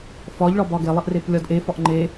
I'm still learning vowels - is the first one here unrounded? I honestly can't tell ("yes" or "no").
no